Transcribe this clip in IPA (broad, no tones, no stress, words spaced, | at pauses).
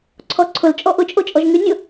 ǀʰɔǀʰʊl t͡ʃʼɔʔʊ t͡ʃʼot͡ʃʼɔʒŋy nʲʊ